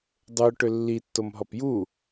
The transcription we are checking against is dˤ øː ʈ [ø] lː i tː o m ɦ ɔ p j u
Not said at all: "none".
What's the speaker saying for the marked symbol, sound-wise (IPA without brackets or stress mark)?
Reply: ø